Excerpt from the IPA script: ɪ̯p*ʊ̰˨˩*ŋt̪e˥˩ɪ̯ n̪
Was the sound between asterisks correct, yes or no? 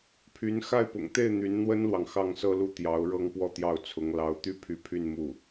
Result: yes